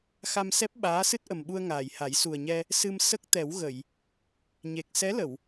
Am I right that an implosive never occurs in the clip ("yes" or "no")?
no